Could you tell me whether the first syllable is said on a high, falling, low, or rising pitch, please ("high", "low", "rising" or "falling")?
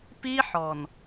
high